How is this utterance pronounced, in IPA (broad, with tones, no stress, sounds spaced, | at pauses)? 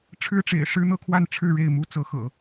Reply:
ʈ͡ʂʰ ɻ̩˥ ʈ͡ʂ ḛ˨˩ ɪ̯ ʂ ɻ̩˥ n̪ ɤ˥ kʰ w a˥˧ n ʈ͡ʂʰ ɻ̩˥˧ ɻ e˥˩ ɪ̯ m u˥ t͡s ɤ˧˥ x ɤ̰˨˩˦